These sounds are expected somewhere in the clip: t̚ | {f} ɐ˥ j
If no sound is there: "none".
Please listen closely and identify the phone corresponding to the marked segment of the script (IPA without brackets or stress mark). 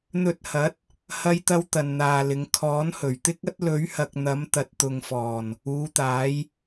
h